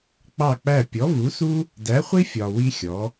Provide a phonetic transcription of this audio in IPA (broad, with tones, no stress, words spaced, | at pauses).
k͡pɑ˦˨k͡pæ˦˨ pʲɔ˨˥vu˨˥su˥ | dæ˨˥ χʷi˥fʲɒ˨ wi˥xʲɔ˨˥